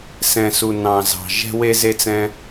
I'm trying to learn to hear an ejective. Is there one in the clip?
no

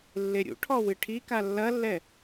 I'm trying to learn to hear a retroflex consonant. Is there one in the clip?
yes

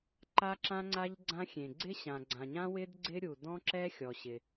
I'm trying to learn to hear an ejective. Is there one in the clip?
no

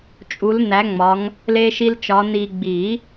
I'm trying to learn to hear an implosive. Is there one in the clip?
no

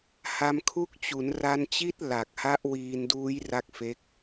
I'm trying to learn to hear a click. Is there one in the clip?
no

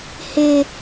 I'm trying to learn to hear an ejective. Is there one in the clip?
no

